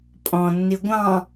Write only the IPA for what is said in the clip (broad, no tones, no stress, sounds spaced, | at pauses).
pʼ ɔ̃ nː i ɡʷ ɑ̃